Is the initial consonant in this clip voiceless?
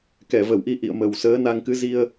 yes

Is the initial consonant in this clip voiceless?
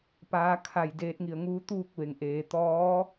yes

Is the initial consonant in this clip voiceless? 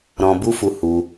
no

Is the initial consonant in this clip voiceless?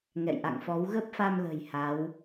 no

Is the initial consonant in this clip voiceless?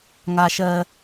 no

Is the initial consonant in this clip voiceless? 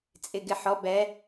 yes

